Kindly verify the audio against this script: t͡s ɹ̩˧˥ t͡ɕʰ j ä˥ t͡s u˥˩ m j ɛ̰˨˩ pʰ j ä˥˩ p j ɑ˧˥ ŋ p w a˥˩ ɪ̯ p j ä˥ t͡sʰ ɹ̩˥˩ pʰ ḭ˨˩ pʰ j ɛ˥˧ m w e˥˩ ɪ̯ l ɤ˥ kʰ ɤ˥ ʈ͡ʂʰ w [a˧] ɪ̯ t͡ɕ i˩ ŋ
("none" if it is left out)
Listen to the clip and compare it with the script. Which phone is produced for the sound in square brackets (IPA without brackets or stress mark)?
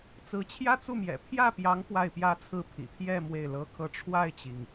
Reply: a˥˩